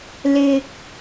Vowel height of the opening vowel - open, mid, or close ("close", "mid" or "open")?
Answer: close